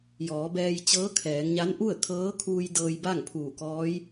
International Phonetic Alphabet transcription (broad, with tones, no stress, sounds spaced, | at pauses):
j ɔː˩˧ b ɛː˧ j t͡ɕ ɤː˧˥ kʰ ɛː˩˧ ŋ ɲ a˧˥ n ʔ u˥˨ ə̯ kʰ ɤː˧˥ kʰ uː˧ j d ɤː˧ j b a˥˨ ŋ pʰ uː˧˩ k ɔː˧˥ j